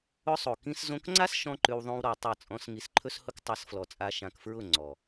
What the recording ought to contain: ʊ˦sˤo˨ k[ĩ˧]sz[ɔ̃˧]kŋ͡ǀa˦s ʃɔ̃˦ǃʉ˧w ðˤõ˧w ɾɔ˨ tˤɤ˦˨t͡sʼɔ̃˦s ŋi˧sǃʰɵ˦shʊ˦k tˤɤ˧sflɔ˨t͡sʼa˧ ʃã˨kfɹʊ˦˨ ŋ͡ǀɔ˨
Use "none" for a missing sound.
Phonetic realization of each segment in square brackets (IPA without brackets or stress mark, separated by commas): ĩ˧, õ˧